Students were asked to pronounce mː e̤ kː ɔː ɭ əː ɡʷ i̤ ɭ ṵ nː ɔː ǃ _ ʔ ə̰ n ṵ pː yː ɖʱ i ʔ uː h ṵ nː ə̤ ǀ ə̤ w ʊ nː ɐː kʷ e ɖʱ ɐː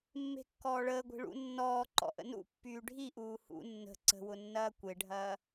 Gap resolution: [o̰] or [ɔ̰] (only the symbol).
ɔ̰